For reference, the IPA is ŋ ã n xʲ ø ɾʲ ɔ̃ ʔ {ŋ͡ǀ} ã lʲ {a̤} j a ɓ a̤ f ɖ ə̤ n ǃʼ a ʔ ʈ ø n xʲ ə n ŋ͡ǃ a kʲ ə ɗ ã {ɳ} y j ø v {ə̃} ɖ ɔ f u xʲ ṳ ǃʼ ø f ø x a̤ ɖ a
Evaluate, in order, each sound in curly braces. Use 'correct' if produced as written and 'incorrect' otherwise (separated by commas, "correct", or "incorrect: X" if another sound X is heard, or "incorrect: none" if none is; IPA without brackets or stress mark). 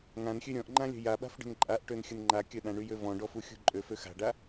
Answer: incorrect: ŋ͡ǃ, incorrect: ə̤, correct, incorrect: ɔ̃